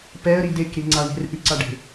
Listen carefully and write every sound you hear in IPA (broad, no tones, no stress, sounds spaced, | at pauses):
p ɛ ə̯ ɾ i d e k ɾ i ŋ͡ǀ a ɳ e̤ r ʔ ʉ ǀ a ɖ e̤